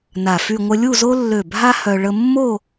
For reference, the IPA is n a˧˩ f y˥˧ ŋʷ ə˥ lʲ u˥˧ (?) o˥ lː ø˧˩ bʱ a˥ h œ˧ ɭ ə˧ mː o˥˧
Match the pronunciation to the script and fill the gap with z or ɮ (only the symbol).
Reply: z